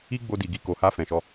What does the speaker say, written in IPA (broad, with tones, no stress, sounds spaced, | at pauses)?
i˦ ɡ͡b o˧ d i˨ ɡ i˧ k o˨ h a˧ f ɛ̃˨ ʃ ɔ˧